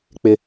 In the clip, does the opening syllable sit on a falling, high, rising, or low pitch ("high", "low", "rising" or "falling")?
high